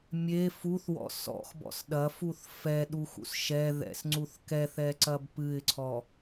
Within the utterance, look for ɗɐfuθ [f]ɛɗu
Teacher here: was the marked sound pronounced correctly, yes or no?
yes